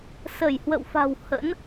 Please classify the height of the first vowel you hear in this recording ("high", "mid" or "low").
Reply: mid